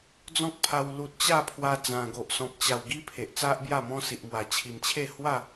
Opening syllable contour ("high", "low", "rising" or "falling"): high